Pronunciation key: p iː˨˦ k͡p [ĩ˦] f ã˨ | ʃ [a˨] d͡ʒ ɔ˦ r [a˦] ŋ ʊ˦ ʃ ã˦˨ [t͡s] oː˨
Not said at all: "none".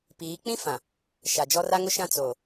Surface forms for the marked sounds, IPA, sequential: ĩ˦, a˨, a˦, t͡s

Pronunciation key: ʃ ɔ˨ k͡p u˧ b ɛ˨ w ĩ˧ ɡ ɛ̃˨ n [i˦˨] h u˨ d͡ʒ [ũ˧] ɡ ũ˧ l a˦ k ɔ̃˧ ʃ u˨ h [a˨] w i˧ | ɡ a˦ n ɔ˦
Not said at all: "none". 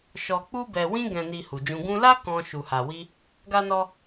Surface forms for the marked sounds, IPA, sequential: i˨, ũ˧, a˨

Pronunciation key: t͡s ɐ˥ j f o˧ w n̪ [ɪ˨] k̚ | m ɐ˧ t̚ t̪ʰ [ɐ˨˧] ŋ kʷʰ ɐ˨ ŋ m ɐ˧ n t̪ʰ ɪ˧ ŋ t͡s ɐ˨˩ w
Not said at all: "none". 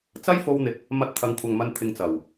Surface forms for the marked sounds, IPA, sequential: ɪ˨, ɐ˨˧

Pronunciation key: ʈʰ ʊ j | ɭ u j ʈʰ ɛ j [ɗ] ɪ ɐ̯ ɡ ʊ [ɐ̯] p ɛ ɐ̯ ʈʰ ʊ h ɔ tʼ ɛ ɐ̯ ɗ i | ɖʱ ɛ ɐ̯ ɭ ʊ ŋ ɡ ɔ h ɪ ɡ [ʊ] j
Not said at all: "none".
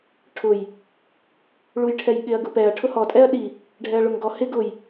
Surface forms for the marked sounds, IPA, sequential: ɠ, none, ʊ

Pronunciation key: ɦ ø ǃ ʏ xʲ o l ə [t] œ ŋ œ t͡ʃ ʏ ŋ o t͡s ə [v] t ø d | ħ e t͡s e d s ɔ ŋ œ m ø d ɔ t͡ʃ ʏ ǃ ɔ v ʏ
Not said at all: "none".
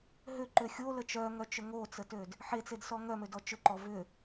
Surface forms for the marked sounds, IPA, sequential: t͡ʃ, none

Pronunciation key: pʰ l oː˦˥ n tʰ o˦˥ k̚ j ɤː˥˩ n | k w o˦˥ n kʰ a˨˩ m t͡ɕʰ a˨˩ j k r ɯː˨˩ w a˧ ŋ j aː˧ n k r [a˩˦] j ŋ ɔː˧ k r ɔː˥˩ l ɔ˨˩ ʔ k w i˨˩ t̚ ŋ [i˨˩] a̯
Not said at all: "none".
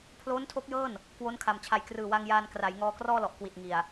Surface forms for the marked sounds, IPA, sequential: a˩˦, i˨˩

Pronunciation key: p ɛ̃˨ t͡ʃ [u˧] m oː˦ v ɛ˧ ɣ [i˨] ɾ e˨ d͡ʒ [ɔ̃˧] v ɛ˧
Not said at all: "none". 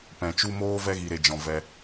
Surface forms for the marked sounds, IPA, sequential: u˧, i˨, ɔ̃˨

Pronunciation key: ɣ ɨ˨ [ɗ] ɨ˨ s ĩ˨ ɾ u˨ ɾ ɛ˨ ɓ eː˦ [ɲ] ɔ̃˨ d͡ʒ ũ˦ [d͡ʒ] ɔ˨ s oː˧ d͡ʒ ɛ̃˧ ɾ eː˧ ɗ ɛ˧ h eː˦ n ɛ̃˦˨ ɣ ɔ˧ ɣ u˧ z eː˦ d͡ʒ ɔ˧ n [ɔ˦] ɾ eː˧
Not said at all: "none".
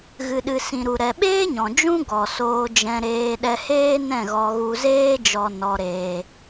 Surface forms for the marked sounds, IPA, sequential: ɗ, ɲ, ɡ, ɔ˧

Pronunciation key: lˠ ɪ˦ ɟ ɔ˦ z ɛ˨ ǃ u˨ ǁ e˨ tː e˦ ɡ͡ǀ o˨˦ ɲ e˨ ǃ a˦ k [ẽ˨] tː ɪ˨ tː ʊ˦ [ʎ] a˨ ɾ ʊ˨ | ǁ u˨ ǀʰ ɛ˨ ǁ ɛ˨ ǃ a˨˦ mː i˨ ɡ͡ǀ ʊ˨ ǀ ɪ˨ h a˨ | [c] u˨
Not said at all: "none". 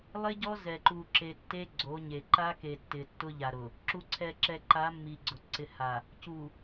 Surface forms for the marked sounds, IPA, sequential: e˨, ʎ, c

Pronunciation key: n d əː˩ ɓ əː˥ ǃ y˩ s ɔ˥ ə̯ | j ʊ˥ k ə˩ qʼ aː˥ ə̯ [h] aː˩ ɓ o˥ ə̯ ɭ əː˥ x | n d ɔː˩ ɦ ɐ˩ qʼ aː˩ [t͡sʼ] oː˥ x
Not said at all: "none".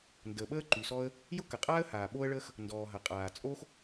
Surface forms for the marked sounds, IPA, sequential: h, t͡sʼ

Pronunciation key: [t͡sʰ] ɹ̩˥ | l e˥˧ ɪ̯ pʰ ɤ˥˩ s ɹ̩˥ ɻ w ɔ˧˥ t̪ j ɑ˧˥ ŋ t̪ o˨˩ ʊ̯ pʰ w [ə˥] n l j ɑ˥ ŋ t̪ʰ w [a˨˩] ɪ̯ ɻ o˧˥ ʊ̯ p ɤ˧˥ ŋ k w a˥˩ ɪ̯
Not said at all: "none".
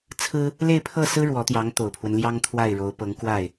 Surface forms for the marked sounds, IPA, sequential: t͡sʰ, ə˦, a˥˩

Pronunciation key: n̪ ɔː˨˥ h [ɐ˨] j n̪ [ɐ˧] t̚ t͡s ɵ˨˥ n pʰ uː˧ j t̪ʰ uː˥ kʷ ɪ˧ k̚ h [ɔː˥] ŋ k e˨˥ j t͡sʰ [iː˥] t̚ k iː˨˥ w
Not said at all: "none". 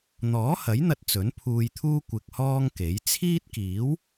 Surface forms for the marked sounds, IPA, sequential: ɐ˨˥, ɐ˧, ɔː˥, iː˥

